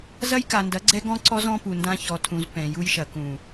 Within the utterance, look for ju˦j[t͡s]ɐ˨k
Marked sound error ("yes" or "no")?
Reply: yes